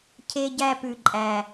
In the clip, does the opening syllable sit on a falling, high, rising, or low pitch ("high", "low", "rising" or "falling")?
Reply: high